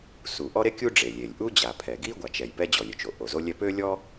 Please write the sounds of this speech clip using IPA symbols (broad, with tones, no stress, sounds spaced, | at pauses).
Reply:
s u˩ ʔ ɔ˥ ɾ e˥ kʲ u˥ ɖ͡ʐ e˩ lʲ e˩ lʲ ʔ u˥ d͡ʑ a˩ pʰ ɛ˩ ɡ i˥ ɡʷ a˩ t͡ʃ ɛ˩ j p ɛ˥ d͡ʑ ɔ˩ lʲ ø˩ t͡ʃ o˩ ʔ o˩ z o˥ lʲ ɛ˥ p ø˥ lʲ ɔ˥